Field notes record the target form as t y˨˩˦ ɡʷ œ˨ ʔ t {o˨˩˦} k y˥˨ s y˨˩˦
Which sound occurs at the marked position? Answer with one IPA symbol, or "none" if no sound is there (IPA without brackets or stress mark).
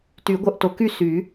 o˨˩˦